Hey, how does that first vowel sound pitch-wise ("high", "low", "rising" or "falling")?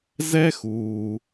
high